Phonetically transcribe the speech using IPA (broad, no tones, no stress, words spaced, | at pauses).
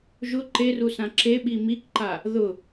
ʒʊ ǃerusã ǁeɓi mikǃa | ðʊ